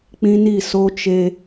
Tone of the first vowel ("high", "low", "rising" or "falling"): high